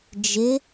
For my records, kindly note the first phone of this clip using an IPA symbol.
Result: d͡ʒ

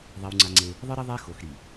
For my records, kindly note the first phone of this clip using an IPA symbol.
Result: ðˤ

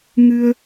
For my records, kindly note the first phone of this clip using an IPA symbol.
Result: ŋ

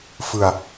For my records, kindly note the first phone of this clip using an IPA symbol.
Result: f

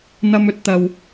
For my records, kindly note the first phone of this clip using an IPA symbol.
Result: n̪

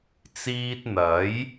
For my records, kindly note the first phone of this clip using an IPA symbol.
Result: t͡s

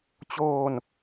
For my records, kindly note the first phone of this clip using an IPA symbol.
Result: t͡ɕ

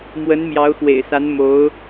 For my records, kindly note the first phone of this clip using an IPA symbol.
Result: m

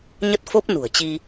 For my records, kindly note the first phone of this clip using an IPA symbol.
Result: ɲ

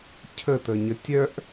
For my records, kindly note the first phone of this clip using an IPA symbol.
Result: cʰ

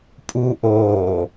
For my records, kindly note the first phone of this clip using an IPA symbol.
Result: pʼ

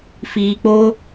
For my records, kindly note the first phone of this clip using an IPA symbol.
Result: f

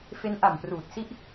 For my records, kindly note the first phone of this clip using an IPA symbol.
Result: f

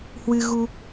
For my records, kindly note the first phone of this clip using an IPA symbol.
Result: h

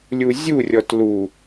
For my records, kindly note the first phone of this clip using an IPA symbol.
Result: lʲ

